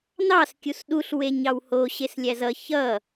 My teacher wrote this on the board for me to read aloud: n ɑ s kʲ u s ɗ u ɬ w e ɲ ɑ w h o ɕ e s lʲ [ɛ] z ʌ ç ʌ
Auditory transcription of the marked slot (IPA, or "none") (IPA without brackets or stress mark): æ